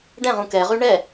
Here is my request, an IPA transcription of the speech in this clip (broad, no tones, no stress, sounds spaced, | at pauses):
ɖ ɛ̃ ʁ ũ k ɛ ʁ y ɳ ɛ